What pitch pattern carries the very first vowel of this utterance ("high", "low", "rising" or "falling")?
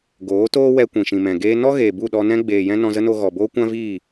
rising